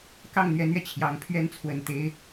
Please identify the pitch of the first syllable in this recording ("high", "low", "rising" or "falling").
falling